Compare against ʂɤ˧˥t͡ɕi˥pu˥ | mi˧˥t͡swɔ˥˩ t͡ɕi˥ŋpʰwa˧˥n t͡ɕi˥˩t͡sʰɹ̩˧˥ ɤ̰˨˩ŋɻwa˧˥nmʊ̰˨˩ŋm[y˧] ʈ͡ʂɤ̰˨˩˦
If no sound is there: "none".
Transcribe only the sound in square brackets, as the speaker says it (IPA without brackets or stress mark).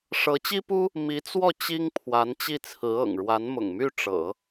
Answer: y˥˩